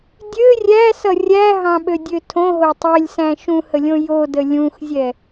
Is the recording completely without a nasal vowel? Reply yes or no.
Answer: no